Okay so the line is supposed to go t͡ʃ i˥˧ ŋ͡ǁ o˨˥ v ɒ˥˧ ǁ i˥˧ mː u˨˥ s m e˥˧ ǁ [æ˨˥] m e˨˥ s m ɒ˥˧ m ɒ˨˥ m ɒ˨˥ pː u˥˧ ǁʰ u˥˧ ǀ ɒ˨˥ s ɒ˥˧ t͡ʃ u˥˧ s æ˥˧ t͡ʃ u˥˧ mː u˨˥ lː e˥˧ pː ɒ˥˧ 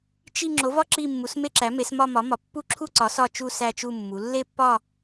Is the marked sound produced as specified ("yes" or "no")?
yes